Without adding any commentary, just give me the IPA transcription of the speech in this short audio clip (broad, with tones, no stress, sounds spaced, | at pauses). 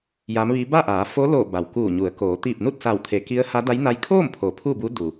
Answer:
j a˧˥ m ʋ iː˧˥ b a˥˨ ʔ aː˩˧ f o˧˥ l o˧˩ b a˩ w k uː˧˩ ɲ u˩˧ ə̯ k oː˩˧ t̪ iː˧˩ p̚ n u˥˨ t̚ s a˧˩ w t̪ʰ e˩ k i˧˥ ə̯ h a˧˥ d a˧˥ j n a˧˥ j kʰ oː˥˨ m pʰ o˩˧ pʰ u˥˨ b u˧˥ d u˩